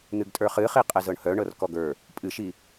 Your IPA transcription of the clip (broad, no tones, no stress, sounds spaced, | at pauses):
n̪ ɨ ɡ tʼ ə˞ χ ɨ χ i qʼ ɛ z ɤ ɳ h œ ɳ ɤ r k ɔ ɡ ə˞ | pʼ ɨ ʃ i